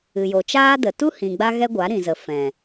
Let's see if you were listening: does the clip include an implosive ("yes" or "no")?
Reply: no